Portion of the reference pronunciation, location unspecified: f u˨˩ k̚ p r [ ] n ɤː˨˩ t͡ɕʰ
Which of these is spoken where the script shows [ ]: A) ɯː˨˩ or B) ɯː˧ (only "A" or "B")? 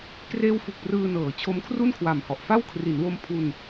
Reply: B